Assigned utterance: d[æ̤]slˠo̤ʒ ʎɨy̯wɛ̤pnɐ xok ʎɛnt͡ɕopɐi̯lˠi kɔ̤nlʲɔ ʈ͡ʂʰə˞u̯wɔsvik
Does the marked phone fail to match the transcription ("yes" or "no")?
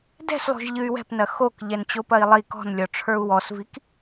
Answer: yes